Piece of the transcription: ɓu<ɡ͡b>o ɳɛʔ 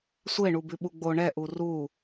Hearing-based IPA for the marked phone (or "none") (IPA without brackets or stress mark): ɡ͡b